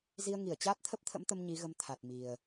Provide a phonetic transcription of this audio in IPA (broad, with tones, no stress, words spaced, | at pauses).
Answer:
zi˧ə̯ŋi˧˩ə̯t͡ɕaː˦˥t̚ t̪ʰə˦˥p̚t̪ʰə̰˧˥mt̪ə˧m ɲi˨˦ɣə˧m t̪ʰa˨˩t̚mi˨˩ə̯